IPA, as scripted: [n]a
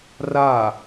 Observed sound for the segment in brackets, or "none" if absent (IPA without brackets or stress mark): r